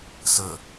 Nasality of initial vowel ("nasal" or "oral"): oral